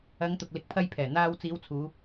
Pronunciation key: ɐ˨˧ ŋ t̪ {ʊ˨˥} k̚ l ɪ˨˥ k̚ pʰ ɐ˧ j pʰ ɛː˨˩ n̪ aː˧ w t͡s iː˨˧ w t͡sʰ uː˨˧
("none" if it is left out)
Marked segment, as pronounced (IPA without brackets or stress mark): ʊ˨